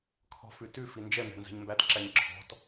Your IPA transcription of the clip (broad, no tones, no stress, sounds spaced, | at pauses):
kʰ ɔ̤ f ʉ t ʉ f i n d͡ʒ ɛ m ɛ̤ n z ɛ̤ ɲ m b æ t ǁ æ ɲ ǁʰ ɔ̤ t